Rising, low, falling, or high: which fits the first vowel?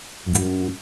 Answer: high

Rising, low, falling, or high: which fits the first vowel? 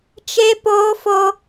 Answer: high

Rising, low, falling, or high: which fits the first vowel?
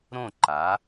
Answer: falling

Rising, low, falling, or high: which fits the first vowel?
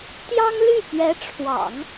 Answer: high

